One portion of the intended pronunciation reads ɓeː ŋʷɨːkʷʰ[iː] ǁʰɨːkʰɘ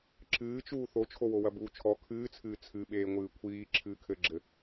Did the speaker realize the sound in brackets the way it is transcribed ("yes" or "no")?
yes